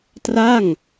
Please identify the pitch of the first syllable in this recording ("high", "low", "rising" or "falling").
falling